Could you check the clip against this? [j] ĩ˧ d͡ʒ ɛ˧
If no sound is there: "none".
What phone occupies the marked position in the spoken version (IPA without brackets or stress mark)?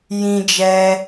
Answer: j